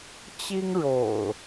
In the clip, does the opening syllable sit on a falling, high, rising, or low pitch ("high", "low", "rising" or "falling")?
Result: high